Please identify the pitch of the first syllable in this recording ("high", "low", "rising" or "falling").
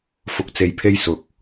low